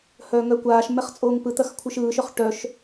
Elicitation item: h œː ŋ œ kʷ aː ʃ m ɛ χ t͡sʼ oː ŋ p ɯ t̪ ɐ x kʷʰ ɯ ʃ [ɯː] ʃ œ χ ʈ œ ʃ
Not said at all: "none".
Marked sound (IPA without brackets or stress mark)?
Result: ɯː